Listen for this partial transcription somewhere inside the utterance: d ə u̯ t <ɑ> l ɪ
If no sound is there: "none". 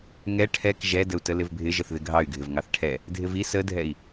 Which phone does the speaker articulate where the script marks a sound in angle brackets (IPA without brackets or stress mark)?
ə